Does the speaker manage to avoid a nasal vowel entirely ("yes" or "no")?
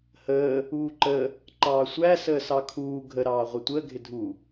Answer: yes